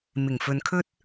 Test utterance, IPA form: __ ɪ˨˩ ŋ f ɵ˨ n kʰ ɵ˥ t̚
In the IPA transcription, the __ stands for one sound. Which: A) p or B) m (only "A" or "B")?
B